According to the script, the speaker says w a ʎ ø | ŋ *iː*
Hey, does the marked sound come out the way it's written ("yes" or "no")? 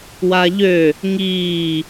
yes